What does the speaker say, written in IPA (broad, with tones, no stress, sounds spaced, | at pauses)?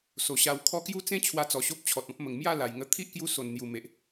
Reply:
s o˨˩ ɕ a˧ w kʰ ɔ˦ k j u˦ t͡s ẽ˦ t͡ɕʰ w a˧ t͡s ɔ˨˩ ɕ o˦ p̚ t͡ɕʰ ɔ˨ t̚ ɔ̃˦ p̚ m ə˨˩ ŋ m j a˥˧ l a˨˩ j ŋ ə˧ t̪ʰ i˦ ʔ k j u˧ s o˨˩ n n̪ j u˨˩ m e˨ ʔ